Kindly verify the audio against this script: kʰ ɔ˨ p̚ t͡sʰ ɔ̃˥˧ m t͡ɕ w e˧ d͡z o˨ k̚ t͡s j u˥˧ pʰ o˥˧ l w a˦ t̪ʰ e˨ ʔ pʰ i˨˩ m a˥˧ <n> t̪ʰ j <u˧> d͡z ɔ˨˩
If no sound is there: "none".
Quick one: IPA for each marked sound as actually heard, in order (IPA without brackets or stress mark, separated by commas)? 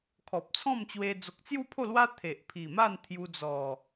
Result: n, u˧